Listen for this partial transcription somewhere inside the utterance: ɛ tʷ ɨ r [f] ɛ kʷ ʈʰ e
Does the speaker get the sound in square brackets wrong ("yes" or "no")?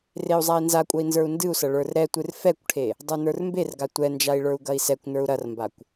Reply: no